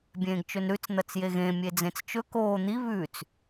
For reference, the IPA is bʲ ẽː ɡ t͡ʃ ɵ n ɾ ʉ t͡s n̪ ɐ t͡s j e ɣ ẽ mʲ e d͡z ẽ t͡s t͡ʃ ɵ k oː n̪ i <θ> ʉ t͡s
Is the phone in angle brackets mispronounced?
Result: yes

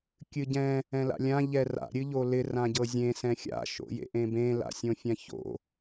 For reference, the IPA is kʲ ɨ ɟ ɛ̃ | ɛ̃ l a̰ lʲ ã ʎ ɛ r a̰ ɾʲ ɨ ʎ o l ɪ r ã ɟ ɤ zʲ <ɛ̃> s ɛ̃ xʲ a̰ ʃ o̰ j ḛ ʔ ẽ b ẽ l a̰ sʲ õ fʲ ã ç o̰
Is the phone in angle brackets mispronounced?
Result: yes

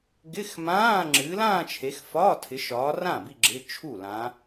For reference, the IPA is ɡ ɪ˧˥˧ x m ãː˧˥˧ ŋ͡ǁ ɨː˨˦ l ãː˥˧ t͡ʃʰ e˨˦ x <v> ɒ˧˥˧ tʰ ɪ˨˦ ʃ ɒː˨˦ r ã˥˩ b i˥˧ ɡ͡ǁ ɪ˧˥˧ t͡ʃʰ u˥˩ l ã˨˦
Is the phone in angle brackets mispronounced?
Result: yes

